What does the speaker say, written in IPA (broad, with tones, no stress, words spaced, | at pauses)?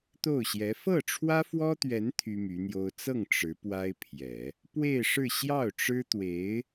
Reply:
t̪o˥˩ʊ̯ɕjɛ˧˥ fɤ˥˩ʈ͡ʂʰwä˥fwɔ˥t̪ɥɛ˧˥n t̪ʰy˥my˧˥n̪jo˥ʊ̯ t͡sɤ˥˩ŋ ʈ͡ʂɻ̩˧˥ pwa˥ɪ̯pʰjɛ˨˩˦ | pwe˥˧ɪ̯ʂɻ̩˥˧ ɕjɑ˥˩ʊ̯ʈ͡ʂɻ̩˥t̪we˧˥ɪ̯